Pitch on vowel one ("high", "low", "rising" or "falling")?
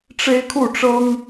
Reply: high